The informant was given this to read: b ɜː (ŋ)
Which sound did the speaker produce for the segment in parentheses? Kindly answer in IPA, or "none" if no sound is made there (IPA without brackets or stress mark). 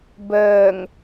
ŋ